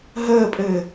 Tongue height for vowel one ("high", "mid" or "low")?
mid